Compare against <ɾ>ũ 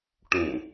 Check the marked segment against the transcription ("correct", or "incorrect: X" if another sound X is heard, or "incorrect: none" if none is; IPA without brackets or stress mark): incorrect: ʈ